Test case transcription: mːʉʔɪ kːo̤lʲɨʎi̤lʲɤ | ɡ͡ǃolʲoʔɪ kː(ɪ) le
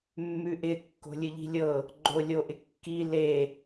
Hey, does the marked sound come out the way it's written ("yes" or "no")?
no